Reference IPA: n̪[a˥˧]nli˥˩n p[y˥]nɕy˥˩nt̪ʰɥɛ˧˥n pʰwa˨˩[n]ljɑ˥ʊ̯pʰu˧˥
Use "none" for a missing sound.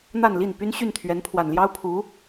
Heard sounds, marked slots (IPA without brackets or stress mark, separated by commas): a˥˧, y˥, n